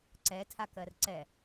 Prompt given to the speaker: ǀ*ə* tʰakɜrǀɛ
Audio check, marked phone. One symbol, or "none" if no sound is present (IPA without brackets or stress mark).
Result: ɛ